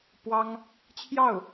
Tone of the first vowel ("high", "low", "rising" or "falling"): high